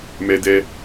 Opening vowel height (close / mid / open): mid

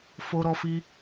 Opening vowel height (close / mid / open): mid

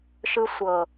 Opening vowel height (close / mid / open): close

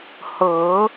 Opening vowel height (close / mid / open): mid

